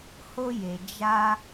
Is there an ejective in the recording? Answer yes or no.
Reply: no